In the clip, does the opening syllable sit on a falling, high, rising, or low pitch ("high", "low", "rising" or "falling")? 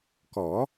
rising